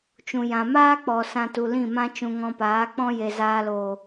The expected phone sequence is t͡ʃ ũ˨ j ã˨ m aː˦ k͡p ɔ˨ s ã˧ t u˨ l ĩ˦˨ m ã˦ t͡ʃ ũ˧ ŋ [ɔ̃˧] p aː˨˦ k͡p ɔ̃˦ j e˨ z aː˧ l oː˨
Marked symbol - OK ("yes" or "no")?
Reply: yes